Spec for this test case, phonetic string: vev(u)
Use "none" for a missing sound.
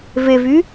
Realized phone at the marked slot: y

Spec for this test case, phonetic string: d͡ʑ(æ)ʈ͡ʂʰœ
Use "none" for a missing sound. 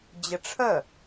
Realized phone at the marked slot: ə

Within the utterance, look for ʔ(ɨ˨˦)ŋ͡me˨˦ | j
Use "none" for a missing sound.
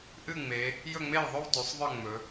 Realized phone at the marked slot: ɨ˥˨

